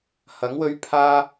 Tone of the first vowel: rising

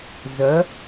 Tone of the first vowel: rising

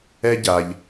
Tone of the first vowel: high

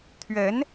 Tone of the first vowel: rising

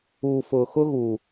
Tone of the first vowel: low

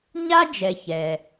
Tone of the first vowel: high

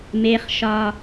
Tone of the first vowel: high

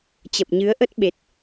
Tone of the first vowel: low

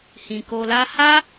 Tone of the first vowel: low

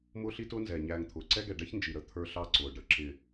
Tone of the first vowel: high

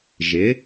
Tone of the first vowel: rising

